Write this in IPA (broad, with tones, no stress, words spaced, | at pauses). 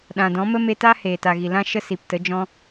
ɗã˨dɔ̃˨˦mə˦ me˧ta˦ heː˨ta˨ɣi˨ lã˧ ʃə˦si˨ptə˨˦d͡ʒɔ̃˦